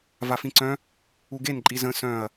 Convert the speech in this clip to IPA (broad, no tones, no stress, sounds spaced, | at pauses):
v a f ĩ ǀ œ̃ | u ɡ e n ǃʼ i z ə̃ s œ̃ ɐ̯